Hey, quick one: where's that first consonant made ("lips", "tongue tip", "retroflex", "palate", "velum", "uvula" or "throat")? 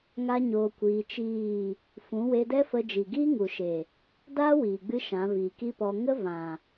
velum